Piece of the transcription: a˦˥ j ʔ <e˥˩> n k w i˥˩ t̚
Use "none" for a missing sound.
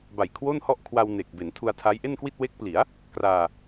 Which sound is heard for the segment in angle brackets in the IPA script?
e˥˩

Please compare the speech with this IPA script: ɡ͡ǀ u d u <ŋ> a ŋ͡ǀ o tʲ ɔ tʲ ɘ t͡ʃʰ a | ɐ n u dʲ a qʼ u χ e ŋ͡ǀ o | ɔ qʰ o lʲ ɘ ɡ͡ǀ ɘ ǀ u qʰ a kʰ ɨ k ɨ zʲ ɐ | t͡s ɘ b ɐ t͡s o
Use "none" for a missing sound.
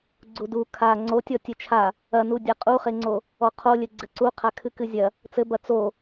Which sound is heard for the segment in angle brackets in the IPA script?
kʰ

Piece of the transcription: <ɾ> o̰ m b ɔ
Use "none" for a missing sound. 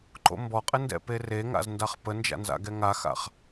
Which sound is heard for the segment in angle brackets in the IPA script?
ǃ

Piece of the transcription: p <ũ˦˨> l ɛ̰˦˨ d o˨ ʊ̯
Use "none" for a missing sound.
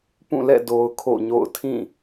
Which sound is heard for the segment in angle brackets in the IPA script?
ũ˦˨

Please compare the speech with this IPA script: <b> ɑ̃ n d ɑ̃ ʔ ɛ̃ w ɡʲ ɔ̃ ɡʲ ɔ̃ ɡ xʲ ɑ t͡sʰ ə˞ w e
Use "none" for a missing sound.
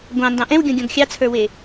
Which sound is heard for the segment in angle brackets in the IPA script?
ɡʷ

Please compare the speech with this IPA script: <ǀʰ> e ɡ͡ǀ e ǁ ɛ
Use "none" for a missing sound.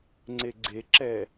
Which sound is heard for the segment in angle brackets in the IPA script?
ŋ͡ǀ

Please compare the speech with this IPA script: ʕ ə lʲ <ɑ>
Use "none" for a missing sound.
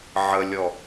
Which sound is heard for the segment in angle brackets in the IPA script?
ɔ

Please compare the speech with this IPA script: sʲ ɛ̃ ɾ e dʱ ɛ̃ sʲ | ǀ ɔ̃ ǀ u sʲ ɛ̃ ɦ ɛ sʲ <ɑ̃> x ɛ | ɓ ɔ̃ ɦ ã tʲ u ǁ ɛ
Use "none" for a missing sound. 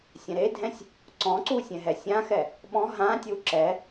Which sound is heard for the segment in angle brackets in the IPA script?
ã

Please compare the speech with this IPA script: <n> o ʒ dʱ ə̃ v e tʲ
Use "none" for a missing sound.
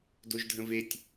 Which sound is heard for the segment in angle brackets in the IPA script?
d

